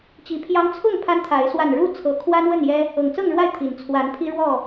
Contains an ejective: no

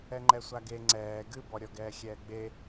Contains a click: yes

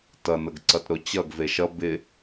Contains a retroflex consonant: no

